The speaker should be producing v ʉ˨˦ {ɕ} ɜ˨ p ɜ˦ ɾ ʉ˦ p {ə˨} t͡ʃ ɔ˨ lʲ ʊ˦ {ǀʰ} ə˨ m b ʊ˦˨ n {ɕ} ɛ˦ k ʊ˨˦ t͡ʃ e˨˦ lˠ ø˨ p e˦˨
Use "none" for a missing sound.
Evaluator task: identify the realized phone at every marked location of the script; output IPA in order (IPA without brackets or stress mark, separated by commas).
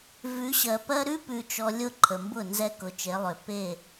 ɕ, ʉ˨, ǃʰ, z